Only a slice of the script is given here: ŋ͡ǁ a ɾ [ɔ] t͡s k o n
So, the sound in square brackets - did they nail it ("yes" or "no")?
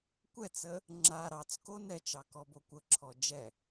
no